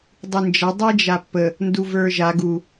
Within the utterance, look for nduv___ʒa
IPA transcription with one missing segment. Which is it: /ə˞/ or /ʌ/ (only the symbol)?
ə˞